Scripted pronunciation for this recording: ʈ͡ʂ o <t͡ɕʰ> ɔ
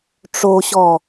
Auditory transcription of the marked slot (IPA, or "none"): ɕ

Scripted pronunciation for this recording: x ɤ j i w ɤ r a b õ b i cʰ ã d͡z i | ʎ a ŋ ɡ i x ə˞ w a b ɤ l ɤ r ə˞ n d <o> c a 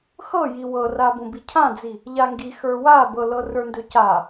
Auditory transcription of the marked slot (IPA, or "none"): ɵ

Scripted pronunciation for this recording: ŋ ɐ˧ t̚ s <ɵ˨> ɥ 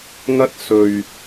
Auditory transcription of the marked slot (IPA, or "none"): ɵ˨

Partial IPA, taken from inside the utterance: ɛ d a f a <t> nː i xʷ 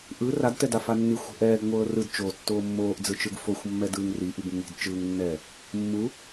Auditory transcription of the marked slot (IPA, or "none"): none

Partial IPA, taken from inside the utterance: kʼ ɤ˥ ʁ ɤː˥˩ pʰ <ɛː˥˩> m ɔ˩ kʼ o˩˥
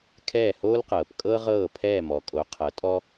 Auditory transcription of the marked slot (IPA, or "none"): ɛː˥˩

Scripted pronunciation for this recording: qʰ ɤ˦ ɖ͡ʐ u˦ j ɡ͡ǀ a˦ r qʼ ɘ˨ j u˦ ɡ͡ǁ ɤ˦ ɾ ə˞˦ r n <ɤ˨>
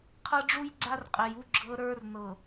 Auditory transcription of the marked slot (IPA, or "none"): ɤ˨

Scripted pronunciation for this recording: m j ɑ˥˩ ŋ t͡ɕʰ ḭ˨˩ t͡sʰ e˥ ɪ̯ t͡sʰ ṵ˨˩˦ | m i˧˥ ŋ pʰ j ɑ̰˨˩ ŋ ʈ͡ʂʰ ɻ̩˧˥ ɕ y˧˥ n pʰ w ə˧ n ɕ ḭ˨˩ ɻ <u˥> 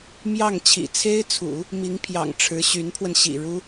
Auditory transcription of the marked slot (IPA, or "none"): u˥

